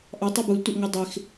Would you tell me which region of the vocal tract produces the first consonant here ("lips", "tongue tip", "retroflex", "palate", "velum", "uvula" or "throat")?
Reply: throat